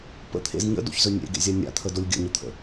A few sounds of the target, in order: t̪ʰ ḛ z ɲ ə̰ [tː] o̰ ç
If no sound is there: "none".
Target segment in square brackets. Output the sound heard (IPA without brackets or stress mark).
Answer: d